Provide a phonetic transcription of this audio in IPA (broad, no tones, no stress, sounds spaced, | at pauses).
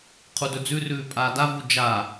qʰ u d ɵ d͡z ʉ r ʉː pʼ aː d a v u d͡ʒ a